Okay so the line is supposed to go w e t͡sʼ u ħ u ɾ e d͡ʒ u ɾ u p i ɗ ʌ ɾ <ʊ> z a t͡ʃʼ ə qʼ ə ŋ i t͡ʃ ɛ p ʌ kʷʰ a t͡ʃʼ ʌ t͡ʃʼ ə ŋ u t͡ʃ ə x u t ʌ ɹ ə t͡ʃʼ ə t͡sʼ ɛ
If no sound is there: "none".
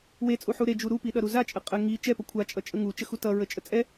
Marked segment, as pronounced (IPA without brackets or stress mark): u